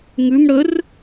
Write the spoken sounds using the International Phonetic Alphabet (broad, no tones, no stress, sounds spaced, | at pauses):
ŋ ʉ m ɽ ə r